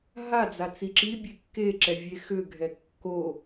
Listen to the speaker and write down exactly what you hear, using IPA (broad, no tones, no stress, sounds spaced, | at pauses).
ɦ a d͡z a t͡s i ǁ i bʲ e kː e ǁ ɛ vʲ e x ʏ ɡʱ ɛ kː o